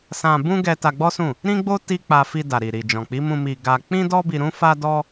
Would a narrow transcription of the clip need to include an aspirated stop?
no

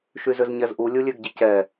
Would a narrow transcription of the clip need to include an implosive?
no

